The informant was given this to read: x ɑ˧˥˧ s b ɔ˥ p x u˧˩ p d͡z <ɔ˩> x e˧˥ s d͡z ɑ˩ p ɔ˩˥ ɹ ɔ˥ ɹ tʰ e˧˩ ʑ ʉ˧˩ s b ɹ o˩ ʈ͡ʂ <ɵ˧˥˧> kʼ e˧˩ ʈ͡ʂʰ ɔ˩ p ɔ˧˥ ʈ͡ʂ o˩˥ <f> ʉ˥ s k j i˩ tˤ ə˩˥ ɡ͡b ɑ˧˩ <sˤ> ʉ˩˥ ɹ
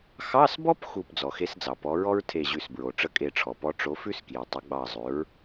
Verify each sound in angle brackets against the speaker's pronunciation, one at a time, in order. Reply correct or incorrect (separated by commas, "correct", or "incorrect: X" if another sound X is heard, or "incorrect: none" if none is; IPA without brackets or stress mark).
correct, incorrect: ə˧˥˧, correct, incorrect: zˤ